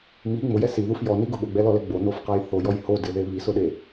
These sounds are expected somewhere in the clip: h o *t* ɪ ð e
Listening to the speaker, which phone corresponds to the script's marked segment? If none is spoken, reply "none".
d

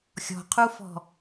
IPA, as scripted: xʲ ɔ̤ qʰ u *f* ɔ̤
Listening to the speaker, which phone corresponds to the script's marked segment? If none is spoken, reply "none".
f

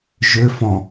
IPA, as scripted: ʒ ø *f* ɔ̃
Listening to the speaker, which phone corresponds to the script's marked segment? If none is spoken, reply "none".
f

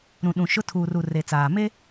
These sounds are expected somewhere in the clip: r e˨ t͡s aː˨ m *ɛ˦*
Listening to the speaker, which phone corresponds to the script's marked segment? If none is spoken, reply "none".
e˦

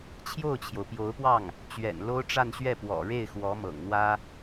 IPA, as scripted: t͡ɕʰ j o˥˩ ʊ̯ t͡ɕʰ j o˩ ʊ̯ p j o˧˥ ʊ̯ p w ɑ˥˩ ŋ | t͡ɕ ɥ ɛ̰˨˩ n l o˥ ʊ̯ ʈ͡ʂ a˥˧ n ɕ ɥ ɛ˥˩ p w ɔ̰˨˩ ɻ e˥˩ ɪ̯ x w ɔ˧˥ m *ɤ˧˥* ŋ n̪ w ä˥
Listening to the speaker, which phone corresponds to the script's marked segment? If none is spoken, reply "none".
ɤ̰˨˩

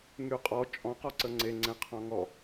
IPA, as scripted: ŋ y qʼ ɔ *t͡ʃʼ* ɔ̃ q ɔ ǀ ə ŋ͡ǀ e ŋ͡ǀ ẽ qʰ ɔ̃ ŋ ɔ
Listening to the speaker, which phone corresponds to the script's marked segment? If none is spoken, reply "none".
t͡ʃʼ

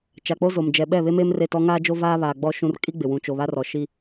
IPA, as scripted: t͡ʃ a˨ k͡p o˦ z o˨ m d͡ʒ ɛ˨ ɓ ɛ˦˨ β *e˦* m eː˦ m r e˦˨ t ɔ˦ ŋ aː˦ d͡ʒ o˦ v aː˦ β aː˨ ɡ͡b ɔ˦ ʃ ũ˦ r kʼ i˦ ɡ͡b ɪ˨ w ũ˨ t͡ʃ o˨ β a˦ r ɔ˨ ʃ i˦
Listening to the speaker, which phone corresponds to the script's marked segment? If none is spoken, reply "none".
e˦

